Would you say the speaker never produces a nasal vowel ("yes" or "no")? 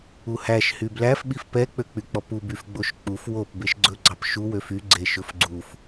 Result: yes